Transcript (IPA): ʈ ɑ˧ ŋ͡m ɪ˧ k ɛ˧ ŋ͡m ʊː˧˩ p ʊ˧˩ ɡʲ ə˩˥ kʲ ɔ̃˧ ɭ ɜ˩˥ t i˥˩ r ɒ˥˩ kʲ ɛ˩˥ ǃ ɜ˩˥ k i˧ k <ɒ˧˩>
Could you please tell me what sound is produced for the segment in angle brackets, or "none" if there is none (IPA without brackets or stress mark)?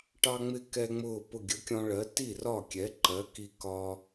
ɒ˧